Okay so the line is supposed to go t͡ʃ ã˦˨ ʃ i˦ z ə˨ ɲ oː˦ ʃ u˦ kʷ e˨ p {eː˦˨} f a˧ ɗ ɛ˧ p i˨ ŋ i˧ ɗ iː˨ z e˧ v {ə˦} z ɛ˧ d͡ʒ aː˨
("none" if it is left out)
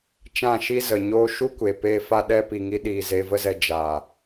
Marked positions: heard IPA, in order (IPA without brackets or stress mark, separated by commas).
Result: eː˧, ə˦